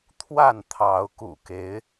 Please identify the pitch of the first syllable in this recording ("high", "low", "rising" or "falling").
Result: falling